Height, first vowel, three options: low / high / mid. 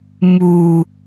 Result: high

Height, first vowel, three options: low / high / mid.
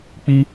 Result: high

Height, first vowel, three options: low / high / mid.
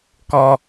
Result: mid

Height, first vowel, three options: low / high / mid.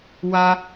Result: low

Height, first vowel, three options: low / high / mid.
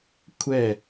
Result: mid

